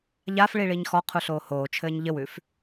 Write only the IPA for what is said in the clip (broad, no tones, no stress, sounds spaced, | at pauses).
ʎ a f ɭ i ɭ iː ɲ x ɔ qʰ u ɬ oː h oː t͡ʃʰ ɘː ɲ ʎ ɘ w ʉ f